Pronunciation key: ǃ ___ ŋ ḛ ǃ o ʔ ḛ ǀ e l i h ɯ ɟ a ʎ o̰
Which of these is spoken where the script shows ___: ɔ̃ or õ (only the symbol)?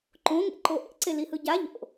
õ